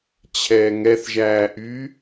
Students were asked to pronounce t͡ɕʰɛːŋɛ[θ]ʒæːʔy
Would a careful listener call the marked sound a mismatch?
no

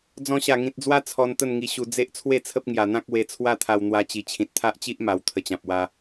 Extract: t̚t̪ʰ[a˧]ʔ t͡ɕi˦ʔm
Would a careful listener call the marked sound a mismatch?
yes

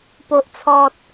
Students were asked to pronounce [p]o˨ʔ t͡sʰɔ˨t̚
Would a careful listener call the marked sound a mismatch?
no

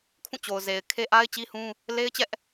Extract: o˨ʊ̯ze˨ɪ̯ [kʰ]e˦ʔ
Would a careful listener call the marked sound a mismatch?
no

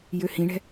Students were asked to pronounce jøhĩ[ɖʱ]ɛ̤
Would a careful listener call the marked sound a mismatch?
yes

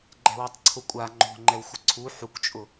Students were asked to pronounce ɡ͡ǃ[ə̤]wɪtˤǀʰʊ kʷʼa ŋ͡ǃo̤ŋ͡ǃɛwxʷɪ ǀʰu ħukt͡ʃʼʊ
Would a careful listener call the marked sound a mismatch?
yes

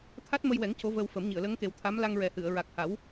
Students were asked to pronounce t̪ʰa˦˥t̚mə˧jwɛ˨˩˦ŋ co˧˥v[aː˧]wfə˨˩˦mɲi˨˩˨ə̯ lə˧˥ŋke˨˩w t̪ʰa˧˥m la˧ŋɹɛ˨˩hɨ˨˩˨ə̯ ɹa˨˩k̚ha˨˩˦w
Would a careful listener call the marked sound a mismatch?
yes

